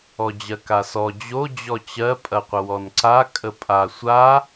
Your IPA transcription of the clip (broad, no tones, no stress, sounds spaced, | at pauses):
ɔ d͡ʑ ɜ k a s ɔ d͡ʑ o d͡ʑ ɔ t͡ɕ ɜ pʼ ɐ qʷ ə w ɔ n ǀ a kʼ ə pʼ a sʷ a